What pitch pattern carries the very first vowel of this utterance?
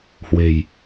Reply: low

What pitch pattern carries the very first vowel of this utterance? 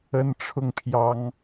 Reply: high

